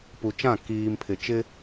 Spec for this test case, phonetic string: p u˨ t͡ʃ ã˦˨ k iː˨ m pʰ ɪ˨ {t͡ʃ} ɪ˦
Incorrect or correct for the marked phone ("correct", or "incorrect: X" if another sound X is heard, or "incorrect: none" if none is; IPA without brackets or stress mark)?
correct